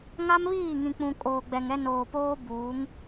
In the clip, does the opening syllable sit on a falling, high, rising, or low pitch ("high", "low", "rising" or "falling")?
high